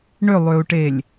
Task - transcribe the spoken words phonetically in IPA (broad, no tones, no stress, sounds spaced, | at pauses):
ɳ ʏ lˠ ø u̯ ʈ e lʲ